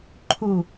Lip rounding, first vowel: rounded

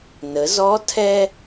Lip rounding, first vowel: unrounded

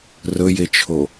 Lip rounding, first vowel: rounded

